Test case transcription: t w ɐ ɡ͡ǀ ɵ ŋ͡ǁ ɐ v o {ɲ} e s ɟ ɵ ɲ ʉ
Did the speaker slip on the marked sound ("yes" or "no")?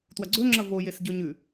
yes